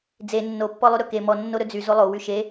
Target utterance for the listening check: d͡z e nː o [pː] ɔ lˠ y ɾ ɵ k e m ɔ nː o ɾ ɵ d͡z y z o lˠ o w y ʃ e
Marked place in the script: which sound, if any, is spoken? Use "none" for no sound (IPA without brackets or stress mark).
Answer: pː